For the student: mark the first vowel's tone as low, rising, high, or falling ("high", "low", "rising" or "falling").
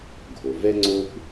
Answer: low